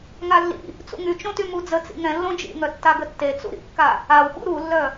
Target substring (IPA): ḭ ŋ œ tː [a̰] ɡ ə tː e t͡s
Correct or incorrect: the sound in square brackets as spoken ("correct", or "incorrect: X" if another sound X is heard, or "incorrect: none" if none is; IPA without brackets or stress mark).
incorrect: a